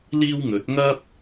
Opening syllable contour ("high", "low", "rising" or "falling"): high